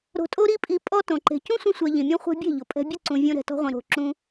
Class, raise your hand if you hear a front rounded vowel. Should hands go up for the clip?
no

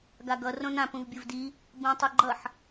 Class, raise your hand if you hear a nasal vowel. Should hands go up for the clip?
yes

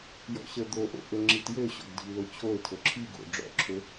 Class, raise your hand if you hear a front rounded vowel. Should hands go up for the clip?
yes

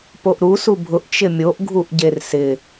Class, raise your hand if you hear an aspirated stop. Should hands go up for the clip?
no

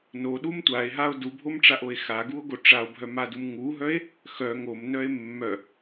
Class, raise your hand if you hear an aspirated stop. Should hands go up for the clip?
no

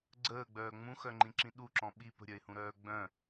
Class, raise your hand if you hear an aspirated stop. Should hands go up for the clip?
no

